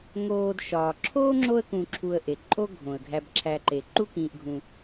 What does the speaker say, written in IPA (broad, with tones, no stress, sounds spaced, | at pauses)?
ŋ oː˨ d ʃ ɒː˩ ǁʰ oː˥ ŋ͡ǁ o˦ ə̯ k ũ˨ ǁʰ u˨ ə̯ ʔ e˩ ǃʼ o˦ ɡʱ õ˩ ə̯ ɡʱ æ˨ b ǁʰ æ˨ ǃ e˩ ǃ u˦ k ĩː˨ ʔ ɡʱ ũ˨